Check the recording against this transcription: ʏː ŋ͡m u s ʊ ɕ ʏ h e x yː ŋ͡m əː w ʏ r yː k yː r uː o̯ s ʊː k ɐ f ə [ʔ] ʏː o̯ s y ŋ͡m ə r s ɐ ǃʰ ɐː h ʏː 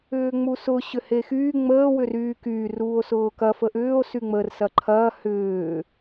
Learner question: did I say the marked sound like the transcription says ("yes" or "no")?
yes